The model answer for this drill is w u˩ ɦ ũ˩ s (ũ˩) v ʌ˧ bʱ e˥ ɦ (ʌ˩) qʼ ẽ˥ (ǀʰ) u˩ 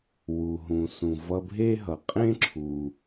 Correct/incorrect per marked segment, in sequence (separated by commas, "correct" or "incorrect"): correct, correct, incorrect